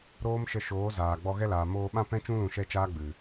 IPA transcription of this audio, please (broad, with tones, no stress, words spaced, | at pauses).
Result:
ɾoː˦mʃə˧ ʃoː˨˦zaː˨ɡ͡bɔ˧ ɣɛ˦laː˨ moː˧ɓã˦pɛ̃˦t͡ʃũ˦ lũ˧ʃɛ˦t͡ʃaː˦ ɡ͡bɨ˨